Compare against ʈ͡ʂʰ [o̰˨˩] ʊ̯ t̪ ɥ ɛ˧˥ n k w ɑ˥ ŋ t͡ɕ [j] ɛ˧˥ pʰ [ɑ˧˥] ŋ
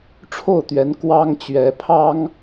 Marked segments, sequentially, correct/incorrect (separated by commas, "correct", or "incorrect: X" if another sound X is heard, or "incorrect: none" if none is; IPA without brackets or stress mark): incorrect: o˥˩, incorrect: ɥ, incorrect: ɑ˥